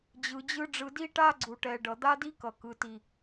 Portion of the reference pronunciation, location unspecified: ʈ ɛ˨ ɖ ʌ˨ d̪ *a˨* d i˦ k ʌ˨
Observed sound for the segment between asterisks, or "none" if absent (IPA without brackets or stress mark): a˦